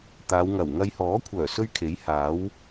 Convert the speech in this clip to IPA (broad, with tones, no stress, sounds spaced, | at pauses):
t̪ aː˨˧ w ŋ ɐ˨˩ w ŋ ɐ˧ j h ɔː˨˥ kʷʰ œː˨˩ s ɵ˥ ɥ kʰ e˨˥ j h aː˨˥ w